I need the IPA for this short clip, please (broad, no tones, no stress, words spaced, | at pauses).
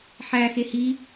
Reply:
ħæ xehi